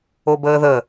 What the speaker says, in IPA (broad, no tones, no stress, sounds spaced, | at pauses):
o b əː ð ə